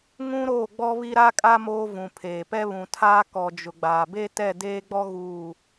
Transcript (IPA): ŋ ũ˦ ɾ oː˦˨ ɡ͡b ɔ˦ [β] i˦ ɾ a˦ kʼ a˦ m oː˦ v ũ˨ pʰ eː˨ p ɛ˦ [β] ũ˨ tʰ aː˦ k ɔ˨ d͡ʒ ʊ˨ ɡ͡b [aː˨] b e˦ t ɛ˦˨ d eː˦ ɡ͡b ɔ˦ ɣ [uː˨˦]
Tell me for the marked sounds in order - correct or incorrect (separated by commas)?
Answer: correct, correct, correct, incorrect